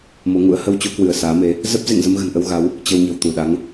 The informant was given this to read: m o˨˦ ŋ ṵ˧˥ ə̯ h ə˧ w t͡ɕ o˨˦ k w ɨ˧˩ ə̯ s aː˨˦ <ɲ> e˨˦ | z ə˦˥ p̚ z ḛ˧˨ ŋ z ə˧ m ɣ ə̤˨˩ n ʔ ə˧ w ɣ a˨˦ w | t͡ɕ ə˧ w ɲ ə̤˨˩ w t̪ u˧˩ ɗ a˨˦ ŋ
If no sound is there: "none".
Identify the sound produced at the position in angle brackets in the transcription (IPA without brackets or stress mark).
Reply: m